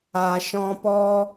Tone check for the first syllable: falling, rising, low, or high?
low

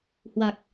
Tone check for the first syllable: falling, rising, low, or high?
low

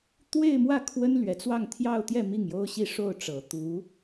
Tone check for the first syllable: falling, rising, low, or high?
falling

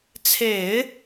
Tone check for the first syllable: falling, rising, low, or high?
low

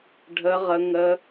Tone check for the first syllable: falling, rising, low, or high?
high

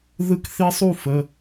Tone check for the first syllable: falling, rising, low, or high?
high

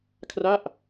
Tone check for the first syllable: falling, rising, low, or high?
falling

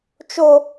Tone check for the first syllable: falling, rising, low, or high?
high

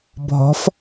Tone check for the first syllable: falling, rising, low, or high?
rising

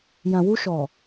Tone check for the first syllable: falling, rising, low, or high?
low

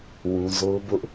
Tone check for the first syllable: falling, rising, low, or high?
high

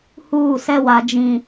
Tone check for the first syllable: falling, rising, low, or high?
falling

